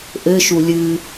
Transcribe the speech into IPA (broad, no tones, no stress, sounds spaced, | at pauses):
ʔ ɘ ʃ u lʲ ɨ